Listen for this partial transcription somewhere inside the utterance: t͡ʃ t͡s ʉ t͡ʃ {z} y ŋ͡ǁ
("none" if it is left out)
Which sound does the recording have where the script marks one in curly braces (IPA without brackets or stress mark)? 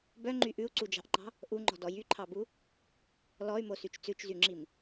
z